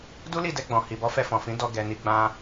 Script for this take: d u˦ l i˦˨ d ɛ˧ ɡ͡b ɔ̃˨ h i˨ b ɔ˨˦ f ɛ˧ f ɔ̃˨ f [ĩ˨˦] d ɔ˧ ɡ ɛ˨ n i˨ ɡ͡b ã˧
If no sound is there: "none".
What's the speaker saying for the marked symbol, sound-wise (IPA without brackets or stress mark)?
ĩ˨˦